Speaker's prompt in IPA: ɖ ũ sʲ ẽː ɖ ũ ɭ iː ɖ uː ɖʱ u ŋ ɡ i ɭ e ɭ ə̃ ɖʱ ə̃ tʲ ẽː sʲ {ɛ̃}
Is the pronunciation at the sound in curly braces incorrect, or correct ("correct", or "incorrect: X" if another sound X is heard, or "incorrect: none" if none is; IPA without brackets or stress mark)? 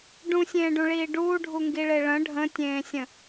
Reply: incorrect: ə̃